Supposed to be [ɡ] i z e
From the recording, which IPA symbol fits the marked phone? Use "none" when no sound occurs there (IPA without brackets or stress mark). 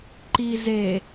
ǃ